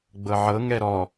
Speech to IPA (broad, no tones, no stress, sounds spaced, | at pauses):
ɡ͡b ɤ ʕ ɤ ŋ ɛ ɾ ɔ